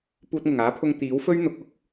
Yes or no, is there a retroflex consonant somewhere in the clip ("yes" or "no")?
no